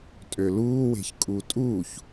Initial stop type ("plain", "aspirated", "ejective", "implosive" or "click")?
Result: ejective